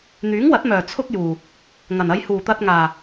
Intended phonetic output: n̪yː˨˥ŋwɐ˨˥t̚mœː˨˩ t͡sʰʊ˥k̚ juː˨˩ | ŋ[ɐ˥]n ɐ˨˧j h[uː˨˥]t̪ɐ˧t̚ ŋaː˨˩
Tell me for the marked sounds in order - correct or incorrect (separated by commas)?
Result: incorrect, incorrect